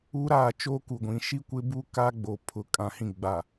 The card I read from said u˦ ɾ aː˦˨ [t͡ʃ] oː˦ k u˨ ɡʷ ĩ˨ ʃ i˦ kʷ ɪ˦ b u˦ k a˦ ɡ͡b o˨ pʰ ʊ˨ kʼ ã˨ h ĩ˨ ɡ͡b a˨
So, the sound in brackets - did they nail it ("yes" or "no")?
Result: yes